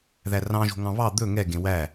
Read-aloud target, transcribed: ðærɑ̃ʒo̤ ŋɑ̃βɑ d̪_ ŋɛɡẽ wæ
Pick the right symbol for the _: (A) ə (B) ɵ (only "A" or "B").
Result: B